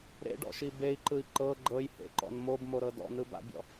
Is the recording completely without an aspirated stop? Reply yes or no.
yes